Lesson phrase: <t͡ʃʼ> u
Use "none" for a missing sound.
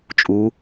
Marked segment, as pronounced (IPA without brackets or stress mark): t͡ʃʼ